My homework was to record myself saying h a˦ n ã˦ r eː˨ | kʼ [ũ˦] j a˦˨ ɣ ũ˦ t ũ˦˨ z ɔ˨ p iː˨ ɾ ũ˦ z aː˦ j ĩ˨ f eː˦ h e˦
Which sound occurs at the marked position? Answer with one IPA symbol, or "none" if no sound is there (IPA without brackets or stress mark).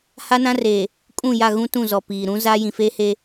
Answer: ũ˦˨